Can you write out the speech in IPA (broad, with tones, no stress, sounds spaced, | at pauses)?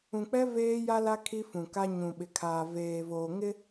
ũ˨ k͡p ɛ˦ v eː˦ j a˦ l a˦ kʰ i˦ f ũ˨ k a˦ ɲ ũ˨ ɓ ɪ˨ kʰ aː˨ v eː˨ v oː˨ ŋ ɪ˦